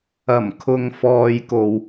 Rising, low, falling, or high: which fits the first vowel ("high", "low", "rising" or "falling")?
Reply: low